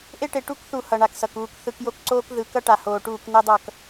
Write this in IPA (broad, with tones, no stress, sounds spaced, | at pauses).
ʔ e˦ ʈ e˨ ʈ u˦ k θ u˨ h ʌ˨ ɳ a˨ k s ʌ˨ k uː˨ k θ ɯ˨ k j o˦ k ǀ oː˦ k ð ɯ˨ k ʌ˦ ʈ a˨ h oː˨ ʈ uː˦˨ k n e˦ dˤ ʌ˦˨ k